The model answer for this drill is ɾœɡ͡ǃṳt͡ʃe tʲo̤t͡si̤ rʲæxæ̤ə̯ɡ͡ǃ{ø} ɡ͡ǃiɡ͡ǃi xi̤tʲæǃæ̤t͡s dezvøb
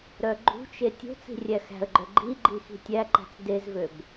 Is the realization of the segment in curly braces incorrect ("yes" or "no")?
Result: yes